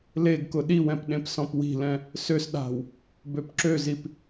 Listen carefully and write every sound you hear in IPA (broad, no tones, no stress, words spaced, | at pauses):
leɡkʊ ɗiwɛ̃p ɗẽpsɔ̃pwi̤lɛ̃ | søs ɗa̤w | bøpǁøzip